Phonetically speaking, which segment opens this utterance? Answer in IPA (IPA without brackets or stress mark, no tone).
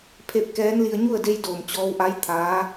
pʰ